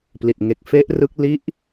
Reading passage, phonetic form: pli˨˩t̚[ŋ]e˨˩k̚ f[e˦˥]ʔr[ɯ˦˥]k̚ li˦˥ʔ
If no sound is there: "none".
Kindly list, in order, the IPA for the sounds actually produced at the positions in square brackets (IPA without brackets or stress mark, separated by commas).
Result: ŋ, e˦˥, ɯ˦˥